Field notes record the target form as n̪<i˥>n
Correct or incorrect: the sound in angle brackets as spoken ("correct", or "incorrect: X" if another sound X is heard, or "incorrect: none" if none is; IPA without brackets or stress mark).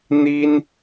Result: correct